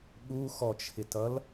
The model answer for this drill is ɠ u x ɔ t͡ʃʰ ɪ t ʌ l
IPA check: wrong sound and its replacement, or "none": none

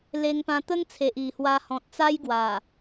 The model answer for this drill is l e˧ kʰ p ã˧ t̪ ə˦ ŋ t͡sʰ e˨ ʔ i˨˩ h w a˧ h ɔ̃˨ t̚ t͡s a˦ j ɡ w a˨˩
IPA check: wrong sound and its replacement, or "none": kʰ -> ŋ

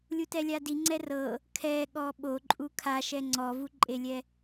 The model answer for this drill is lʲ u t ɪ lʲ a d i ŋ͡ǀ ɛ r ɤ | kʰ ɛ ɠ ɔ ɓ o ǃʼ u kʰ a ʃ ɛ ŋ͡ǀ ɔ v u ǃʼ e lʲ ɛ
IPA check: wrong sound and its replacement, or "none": ɪ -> ɛ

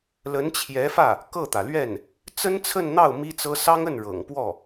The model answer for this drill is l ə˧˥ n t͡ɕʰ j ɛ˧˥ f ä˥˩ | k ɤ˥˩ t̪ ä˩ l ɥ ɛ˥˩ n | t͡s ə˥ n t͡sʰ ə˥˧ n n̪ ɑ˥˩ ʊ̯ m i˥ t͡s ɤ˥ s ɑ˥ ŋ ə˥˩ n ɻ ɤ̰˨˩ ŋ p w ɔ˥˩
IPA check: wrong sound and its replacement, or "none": none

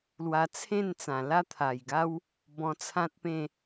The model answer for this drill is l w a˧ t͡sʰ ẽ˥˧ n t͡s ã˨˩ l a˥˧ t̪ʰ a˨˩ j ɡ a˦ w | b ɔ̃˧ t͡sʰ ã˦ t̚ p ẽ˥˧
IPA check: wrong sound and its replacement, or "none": none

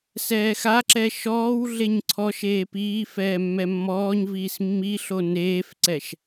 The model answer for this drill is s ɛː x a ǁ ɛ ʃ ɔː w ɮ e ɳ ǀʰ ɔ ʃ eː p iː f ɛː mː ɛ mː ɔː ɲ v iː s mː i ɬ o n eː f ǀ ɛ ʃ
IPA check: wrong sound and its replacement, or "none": ɳ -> ɲ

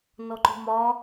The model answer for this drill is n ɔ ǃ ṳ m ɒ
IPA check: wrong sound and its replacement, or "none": none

